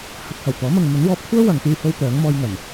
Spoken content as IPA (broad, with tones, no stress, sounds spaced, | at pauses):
h ɐ˨˥ t̚ h ɐ˨˩ w t̪ ɔː˨˥ m ɐ˨ ŋ m ɵ˨˥ n w ɔː˧ p̚ kʷʰ œː˥ w ɐ˨ ŋ t̪ yː˧ h o˧ w t̪ œː˨˥ ŋ m ɔː˧ j ŋ ɐ˨˩ n